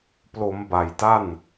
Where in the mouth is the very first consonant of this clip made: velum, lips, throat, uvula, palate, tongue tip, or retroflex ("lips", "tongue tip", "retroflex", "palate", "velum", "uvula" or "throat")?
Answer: lips